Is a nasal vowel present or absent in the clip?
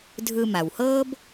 absent